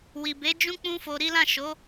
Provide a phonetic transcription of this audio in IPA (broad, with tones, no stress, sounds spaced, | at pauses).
w i˨ b e˨˦ d͡ʒ ũ˦ k͡p ũ˦ f o˧ ɾ i˦ l ã˦˨ ʃ o˨˦